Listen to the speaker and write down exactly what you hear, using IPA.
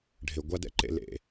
ɖʱ ɪ˨ ɡʷ a˧ d ɛ̰˧ ǃ ḛ˨ l ḛ˨

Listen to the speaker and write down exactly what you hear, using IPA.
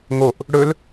ŋ o ʔ | ɽ ɵ l

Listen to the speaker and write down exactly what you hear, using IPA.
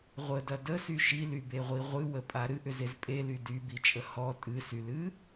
ʁʷ ə d ɐ d ə s y ʃ i l y b e ʁʷ i ʁʷ ɨ w ə pʼ a ɾ ɨ ʔ ʏ z e z pʼ e l y d y b i t͡ʃʼ ə h ɔ tʼ ɨ s y l ɨ

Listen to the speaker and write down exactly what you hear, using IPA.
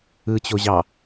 ɯ t͡ɕ o ʑ ɑ

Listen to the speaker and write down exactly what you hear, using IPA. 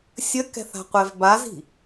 sʲ ə k ɛ̤ θ a̤ qʷ ɛ v b a z i̤

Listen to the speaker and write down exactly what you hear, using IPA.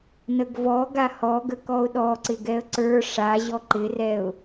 n ə ɡ v ɔ ɡ a h ɔ ɡ ə k ɔ ʊ̯ ɗ ɔ ǀ ɪ ɡ ɛ ə̯ ǀ ə˞ ʂ a ʑ ɔ ǃ ɪ r ɛ ʊ̯

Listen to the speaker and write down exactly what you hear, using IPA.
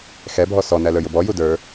x ɛ bʱ ɔ s ɔ n æ l ə˞ j ʊ b ɔ j u d ə˞

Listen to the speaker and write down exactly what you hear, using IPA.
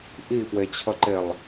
ʔ i p w e t͡ɕʰ ʌ ǃ e lˠ

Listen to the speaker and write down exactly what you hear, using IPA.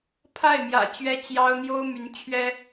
pʰ a˥˩ ɪ̯ m j ä̰˨˩ t͡ɕ ɥ ɛ˥ t͡ɕ j ɑ˥ ʊ̯ n̪ j o˥ ʊ̯ m y˧˥ n t͡ɕʰ ɥ ɛ˥

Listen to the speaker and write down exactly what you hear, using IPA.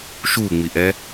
ʃ uː ŋ͡m i ʔ ɛ

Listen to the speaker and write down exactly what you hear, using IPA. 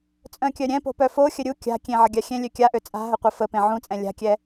t͡sʼ œ̃ kʲ œ ɾʲ ɛ̃ p o̤ p œ f o xʲ ə ɾʲ u kʲ a̤ kʲ ẽ ʕ ə ɡʲ a xʲ ɛ̃ lʲ ø kʲ a ʔ ø t͡sʼ a̤ ɦ ə qʷ ɛ f ə p ẽ ʕ ũ t͡sʼ ɛ̃ lʲ a̤ kʲ ɛ

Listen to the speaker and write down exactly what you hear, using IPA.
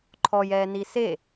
ǃʰ ɔ j ɛː n i s e

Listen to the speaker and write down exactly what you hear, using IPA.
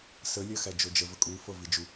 s ə lʲ ɜ x æ d͡ʒ o d͡ʒ ə v ə kʼ u f ɤ v i d͡ʒ u

